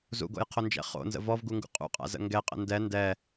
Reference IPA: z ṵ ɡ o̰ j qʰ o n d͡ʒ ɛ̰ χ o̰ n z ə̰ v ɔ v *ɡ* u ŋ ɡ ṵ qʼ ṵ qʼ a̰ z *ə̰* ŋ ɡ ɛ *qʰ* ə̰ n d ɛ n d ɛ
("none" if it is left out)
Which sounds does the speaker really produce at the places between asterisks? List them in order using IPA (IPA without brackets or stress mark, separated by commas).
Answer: ɡ, ə̰, qʼ